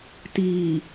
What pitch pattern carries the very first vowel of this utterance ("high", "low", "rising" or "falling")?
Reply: low